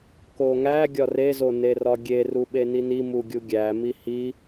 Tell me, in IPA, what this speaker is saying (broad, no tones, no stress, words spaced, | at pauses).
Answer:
koŋæ ɡʲɒre zonerɒɡʲe ruɓenini muɡʲuɡʲæ mihi